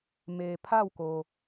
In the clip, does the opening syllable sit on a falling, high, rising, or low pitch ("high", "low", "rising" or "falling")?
low